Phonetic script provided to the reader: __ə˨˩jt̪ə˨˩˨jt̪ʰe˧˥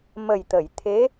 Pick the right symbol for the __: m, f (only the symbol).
m